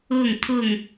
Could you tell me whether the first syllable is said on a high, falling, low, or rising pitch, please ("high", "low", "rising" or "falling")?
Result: falling